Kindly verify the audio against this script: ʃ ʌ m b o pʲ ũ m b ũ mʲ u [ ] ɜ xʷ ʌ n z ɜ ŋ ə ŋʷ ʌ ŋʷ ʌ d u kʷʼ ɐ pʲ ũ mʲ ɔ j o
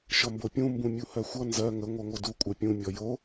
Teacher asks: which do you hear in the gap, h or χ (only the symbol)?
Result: h